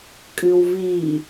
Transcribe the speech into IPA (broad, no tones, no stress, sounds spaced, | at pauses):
kʼ ɨ w v i